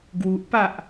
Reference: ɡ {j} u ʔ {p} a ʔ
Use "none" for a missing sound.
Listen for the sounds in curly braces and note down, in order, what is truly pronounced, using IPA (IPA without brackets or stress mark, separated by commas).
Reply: w, p